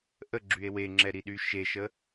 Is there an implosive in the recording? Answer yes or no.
yes